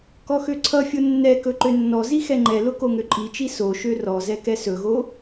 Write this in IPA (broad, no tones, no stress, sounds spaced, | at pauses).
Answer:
k ɔ x ø ǀʰ ʌ fʲ o nː ɛ k ɵ ǃ ø nː ɔ z i x ɛ ŋ͡ǃ ɛ l ʊ k o ŋ ø ǃʼ i t͡ʃ i s o ʃ ø r ɔ z ɛ k ɛ s ɵ ɣ o